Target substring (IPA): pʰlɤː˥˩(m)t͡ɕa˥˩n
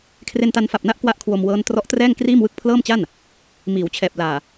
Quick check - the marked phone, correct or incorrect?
correct